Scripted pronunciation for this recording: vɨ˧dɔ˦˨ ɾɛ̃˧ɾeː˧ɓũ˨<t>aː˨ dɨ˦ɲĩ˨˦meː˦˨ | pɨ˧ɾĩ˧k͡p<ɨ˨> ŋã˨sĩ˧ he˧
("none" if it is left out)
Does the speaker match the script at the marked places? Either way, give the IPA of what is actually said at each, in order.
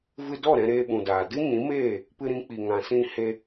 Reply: d, i˨

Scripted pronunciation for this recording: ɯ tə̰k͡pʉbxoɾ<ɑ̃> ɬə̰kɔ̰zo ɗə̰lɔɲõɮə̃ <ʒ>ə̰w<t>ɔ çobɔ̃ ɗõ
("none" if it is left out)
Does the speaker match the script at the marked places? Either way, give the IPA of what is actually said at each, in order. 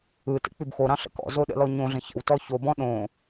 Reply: ɑ̃, ç, t

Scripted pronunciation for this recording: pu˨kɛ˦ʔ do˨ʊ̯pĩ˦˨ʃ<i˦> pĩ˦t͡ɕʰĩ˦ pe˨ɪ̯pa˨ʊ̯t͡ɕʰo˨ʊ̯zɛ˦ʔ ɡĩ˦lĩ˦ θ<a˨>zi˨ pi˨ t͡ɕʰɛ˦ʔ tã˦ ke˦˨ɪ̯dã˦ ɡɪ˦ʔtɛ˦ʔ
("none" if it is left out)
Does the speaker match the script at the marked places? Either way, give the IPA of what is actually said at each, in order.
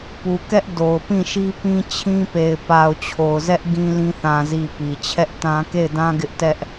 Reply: i˦, ã˨

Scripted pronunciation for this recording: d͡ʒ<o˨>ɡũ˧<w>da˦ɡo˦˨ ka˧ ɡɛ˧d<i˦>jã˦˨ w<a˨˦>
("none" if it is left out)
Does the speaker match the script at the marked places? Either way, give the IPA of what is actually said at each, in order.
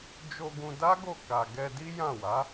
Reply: o˧, none, i˦, a˨˦

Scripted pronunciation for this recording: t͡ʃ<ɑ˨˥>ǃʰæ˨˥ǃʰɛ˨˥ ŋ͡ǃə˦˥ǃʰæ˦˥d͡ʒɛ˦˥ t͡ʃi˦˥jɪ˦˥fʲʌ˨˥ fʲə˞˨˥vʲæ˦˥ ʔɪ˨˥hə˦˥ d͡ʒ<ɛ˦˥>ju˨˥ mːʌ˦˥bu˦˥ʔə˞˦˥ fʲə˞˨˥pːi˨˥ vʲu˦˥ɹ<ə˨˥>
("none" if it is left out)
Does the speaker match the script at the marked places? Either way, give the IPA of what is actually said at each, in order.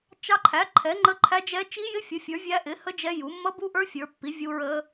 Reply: ɑ˦˥, ɛ˦˥, ə˦˥

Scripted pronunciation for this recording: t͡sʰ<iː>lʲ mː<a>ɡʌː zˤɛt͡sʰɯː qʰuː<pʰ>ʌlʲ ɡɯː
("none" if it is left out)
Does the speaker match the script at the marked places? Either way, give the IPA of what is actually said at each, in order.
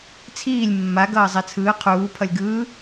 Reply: iː, a, pʰ

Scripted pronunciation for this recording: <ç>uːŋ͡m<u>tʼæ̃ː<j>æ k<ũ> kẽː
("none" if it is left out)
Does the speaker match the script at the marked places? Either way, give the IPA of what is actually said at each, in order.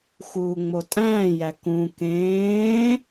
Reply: x, o, j, ũ

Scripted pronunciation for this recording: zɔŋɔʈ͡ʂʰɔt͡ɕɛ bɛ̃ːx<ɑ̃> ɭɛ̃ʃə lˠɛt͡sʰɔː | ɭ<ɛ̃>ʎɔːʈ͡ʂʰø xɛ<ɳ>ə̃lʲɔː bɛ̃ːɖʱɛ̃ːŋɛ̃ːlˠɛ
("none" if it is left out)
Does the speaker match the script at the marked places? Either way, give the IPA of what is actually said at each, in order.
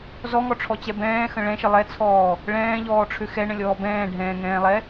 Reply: ə̃, ɛ̃ː, ɳ

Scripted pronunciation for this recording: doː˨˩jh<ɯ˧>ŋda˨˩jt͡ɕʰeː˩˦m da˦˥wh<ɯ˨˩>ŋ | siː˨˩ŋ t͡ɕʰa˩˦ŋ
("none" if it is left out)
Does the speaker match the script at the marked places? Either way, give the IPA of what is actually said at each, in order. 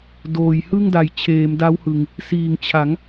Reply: ɯ˥˩, ɯ˨˩

